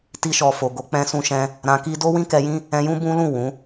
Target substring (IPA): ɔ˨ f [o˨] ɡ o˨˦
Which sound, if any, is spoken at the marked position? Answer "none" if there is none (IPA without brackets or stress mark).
o˨